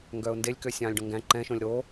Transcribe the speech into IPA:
ŋ ɡ œː ʊ̯ n d e lʲ k ø sʲ ɑ̃ː lʲ ɖ õ ŋ ɡ æ̃ ǃ ɛ̃ ʃ õ lʲ ɾ o

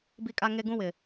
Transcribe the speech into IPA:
b i˦ kʼ a˦ ŋ e˦ ɡ ũ˦ w ɪ˨

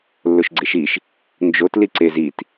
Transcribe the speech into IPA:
lː o ʃ ɡ͡ǀ e ʃ i ʃ | n d͡ʒ o t l i ǀ e z i t

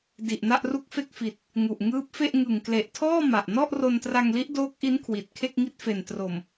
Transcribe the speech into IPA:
d i˨˩ ʔ n a˥˩ ʔ r u˥˩ k̚ f e˥˩ k̚ f i˨˩ t̚ | ŋ u˨˩ ʔ ŋ ɯː˦˥ p̚ f e˥˩ ʔ ŋ ɯ˨˩ ŋ k l e˨˩ ʔ tʰ ɔː˥˩ m a˨˩ ʔ n ɔ˥˩ ʔ r o˧ n t r a˧ ŋ l i˦˥ ʔ d oː˦˥ k̚ ʔ i˦˥ n kʰ w i˨˩ t̚ kʰ e˥˩ k̚ ŋ i˥˩ t̚ f e˨˩ n t r o˨˩ m

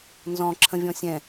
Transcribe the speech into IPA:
n z ɔ̃ ǁʰ ə̃ vʲ ɔ̃ sʲ ɛ̃

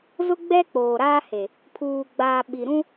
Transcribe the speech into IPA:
z ʊ˦ ɡ͡b ɛ˦ k͡p oː˨ ɾ aː˦ h e˨ | pʰ uː˨ ɡ͡b aː˨ ɓ i˨ ɾ ũ˦

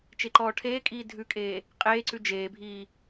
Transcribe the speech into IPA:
t͡ʃ e ǃ ɔː ʈʰ eː kʼ iː dʱ ʉ kʼ eː | qʼ eː ǀ ʉ d͡ʒ eː bʱ iː

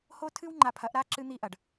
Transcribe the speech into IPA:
h o˦ tʰ ɨ˦ w ŋ͡ǃ a˨ pʰ ɐ˨˦ ʔ ɾ a˦ ǁ ɨ˦ n̪ i˦ ʔ ɐ˨ ɖ

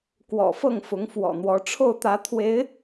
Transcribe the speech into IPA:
k w ɔ̰˨˩ f ɤ˥˩ ŋ f ʊ˧˥ ŋ f w ɔ̰˨˩ n̪ w ɔ˧˥ ʈ͡ʂʰ o˥˩ ʊ̯ t̪ ä˧˥ t̪ʰ w e˧˥ ɪ̯

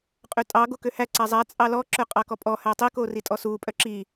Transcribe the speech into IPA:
qʼ ø tʼ ɑ ɡ o k ø h æ ǀ æ zˤ æ t͡sʼ ɑ l ɔ ǁ œ qʼ ɑ k ɔ pʼ ɔ h æ tˤ i k o r i tʼ ɔ s u pʼ œ ǁ i

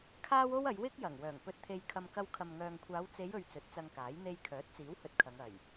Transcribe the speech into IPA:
kʰ aː˥ w o˥ w ɐ˨˧ j w ɪ˥ k̚ j ɐ˨˩ ŋ w œː˨˩ ŋ p ɵ˧ t̚ t̪ʰ e˧ j kʰ ɐ˧ m k ɐ˧ w kʰ ɐ˨ m ŋ œː˨ ŋ kʷʰ aː˨˧ w t͡s e˨˧ j ɵ˨ ɥ t͡s ɵ˨˥ t̚ t͡s ɐ˧ ŋ k aː˨˥ j n̪ e˧ j kʰ œː˨˥ t̚ t͡s iː˨˥ w h ɵ˧ t̚ kʰ ɐ˨˧ ŋ ɐ˨˩ j

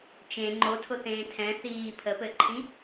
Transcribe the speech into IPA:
t͡ʃ ẽ ŋ͡ǃ o tʰ ʊ θ ẽː tʰ ɛ̃ θ iː pʰ ə p ɘ ǃʰ ĩ

